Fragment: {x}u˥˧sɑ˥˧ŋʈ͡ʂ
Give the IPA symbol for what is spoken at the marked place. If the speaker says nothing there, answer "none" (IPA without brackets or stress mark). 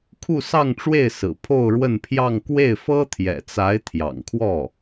kʰ